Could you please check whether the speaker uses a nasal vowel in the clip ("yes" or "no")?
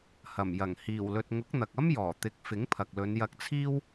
no